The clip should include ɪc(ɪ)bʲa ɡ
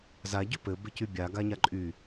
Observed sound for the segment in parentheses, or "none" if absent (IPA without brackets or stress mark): y